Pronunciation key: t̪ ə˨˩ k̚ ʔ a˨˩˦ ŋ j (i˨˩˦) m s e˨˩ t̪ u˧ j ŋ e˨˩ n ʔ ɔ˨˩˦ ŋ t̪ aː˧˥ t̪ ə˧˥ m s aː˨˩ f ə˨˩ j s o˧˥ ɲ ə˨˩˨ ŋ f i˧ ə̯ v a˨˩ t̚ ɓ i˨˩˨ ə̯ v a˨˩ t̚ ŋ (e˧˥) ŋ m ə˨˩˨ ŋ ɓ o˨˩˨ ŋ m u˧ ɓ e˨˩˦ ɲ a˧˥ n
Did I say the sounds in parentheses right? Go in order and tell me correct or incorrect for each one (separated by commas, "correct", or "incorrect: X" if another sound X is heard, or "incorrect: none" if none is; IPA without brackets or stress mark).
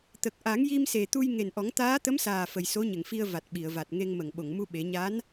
incorrect: i˧, incorrect: e˧